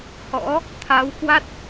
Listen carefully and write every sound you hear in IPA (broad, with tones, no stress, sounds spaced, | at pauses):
h ɔ̰˧˥ | t̪ʰ aː˨˦ w k w a˦˥ t̚